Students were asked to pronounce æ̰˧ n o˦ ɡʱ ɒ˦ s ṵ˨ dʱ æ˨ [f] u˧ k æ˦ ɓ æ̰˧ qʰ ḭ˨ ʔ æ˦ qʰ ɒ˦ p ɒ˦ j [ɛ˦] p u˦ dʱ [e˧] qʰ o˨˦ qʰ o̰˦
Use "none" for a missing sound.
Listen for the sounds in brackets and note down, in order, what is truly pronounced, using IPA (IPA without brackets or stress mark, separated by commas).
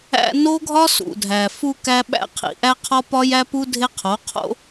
f, æ˦, e˦